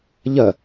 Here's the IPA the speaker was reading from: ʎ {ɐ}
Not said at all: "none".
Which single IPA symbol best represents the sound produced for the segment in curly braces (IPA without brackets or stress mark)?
ɐ